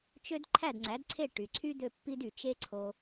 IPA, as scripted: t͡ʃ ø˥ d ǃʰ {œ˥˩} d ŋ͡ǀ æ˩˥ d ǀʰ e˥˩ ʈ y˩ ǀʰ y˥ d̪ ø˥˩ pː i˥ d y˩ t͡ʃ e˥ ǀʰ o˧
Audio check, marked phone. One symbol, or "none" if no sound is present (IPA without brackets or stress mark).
æ˥˩